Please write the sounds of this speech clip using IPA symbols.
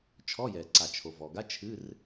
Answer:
t͡ʃʰɔ˧˥˧jɛ˩ ǀa˩t͡ʃʰo˩vɔ˩ ɡa˧˥˧ t͡ʃʰɨ˧˥˧r

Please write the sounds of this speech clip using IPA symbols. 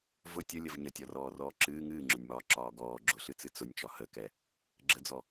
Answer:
vʊ tʲəlʲəv ɲətʲɒrɔːrɔː ǁɨː ŋɨːŋ͡ǁʊnʲmɒːǁɒː ɡɔː ɡ͡ǁʊɬɨt͡sɨ t͡sʊnʲt͡ʃɒ həkɛ | ɡ͡ǁəd͡zɔ

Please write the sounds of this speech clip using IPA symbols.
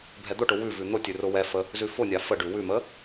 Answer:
bʱɛd̪ʊʈʊ wʉvʉ n̪ʊ tʲʉrʊwɛfə | zʉfʊnʲa fəɖʉ wʉmə

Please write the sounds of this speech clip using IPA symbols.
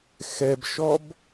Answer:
xɛbʃɔb

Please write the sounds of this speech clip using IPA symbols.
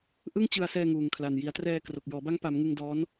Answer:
ʔɯ˥˩ŋt͡ɕɯ˧a̯sɛː˧ ŋuː˨˩ŋkʰla˨˩nji˩˦a̯trɛː˧ kro˨˩k̚jɔː˩˦ba˦˥ŋ pa˩˦mŋɯ˧ŋdɔː˦˥n

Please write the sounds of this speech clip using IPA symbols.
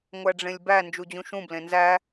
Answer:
ŋʷæɖ͡ʐẽlʲbæ nd͡ʒud͡ʑũʃũ blẽnzæ

